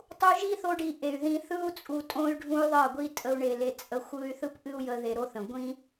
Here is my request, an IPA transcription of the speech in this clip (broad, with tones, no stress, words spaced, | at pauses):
tˤu˧ʒi˦ θo˦ɖi˧ʔe˨y̯ðĩ˧ θɯ˦u̯ t͡sʼu˧tʼõ˦y̯ ɖʱũ˦y̯ðˤɜ˦˨ɡʷi˦ tʼə˧u̯ɳe˨le˨ t͡sʼə˧ xʷɯ˦y̯ θɯ˦pʔɨ˦u̯ jə˦ðe˧ɾo˦θə̃˨ ɡʷĩ˦